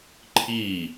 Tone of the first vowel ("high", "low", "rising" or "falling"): falling